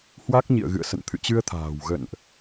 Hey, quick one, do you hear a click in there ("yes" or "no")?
no